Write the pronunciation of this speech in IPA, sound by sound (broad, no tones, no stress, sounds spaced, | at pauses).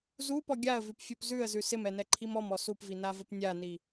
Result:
z u p ɔ ɡʲ a ə̯ v ʉ p fʲ u p z ʉ ə̯ z ʉ s ɪ m ɛ n ɛ ǃʰ i m ɔ m ɔ s u p v i n a v ə p nʲ a n i